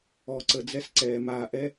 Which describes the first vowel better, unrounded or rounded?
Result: rounded